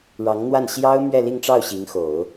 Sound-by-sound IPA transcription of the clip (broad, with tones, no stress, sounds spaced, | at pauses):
ɻ ɑ˧˥ ŋ n̪ w a˥˩ n ɕ j ɑ˥ ʊ̯ m ɥ ɛ˥˧ l i˥˧ ŋ ʈ͡ʂ ɑ˥˩ ʊ̯ ɕ i˧˥ ŋ x o˨˩˦ ʊ̯